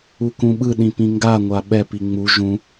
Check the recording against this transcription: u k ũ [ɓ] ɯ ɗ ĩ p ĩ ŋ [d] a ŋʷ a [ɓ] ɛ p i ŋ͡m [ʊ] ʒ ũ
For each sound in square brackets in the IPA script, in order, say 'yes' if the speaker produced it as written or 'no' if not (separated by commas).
yes, no, yes, no